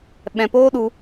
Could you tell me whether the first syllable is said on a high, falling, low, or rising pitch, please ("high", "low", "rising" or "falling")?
low